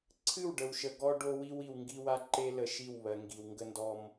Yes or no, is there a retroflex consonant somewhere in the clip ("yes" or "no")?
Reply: yes